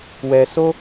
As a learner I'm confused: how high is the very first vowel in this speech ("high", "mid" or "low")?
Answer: mid